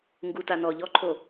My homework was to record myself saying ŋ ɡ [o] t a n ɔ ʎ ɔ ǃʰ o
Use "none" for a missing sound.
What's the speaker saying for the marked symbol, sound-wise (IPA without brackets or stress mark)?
u